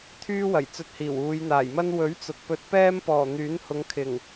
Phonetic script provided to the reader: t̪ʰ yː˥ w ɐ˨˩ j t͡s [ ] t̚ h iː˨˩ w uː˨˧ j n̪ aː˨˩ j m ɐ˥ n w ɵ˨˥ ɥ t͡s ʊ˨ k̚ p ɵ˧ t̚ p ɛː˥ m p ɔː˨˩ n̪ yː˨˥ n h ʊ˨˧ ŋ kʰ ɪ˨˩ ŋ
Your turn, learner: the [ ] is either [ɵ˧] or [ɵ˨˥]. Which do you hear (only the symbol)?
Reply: ɵ˧